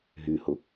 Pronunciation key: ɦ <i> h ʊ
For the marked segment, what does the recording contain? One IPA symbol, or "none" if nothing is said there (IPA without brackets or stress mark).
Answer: y